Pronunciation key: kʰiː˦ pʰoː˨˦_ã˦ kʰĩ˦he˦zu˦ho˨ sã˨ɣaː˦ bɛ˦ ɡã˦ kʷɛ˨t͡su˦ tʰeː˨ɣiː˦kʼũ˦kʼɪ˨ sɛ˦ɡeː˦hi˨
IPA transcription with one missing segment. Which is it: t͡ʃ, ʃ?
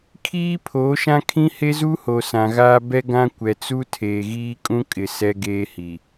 ʃ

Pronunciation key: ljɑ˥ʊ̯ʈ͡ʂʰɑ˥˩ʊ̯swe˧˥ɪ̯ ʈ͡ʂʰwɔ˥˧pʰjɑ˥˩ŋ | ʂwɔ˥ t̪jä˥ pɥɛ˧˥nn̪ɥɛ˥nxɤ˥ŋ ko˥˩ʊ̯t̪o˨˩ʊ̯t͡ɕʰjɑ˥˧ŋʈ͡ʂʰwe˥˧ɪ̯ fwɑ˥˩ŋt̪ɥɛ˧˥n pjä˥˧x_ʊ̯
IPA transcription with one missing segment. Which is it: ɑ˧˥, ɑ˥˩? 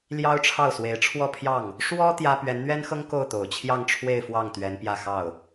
ɑ˥˩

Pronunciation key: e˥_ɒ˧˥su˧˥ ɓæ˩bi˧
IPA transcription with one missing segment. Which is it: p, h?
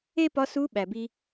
p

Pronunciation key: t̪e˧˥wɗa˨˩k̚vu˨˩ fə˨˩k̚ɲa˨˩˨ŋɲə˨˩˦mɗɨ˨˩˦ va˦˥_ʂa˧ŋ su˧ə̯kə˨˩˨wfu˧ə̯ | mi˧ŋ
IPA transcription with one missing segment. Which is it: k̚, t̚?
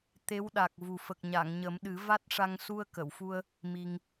t̚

